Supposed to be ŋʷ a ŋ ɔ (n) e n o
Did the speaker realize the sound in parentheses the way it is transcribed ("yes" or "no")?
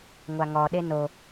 no